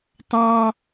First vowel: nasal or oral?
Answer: nasal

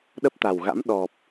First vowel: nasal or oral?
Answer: oral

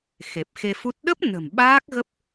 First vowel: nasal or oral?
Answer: oral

